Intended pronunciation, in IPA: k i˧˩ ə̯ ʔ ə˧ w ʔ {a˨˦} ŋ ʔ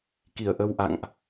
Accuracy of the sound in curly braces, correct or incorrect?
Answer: incorrect: a̰˧˨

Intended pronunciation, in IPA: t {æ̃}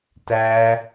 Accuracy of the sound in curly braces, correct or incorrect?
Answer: incorrect: æ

